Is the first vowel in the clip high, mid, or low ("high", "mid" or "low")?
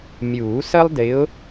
high